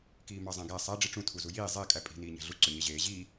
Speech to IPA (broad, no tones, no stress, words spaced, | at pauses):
kiːmɑzˤæ̃ɡæ sˤæ ɖ͡ʐiʈ͡ʂũ tʰuzujiː zˤe kʼæpʼi̤ niːɲæ̤ɮu ǀøɲeʑeː ʑiː